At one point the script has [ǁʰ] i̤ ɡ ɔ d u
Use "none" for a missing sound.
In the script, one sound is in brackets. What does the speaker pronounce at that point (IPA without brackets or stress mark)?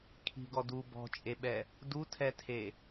kʰ